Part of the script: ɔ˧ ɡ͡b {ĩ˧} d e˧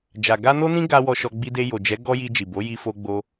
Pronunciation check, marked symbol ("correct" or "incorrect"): incorrect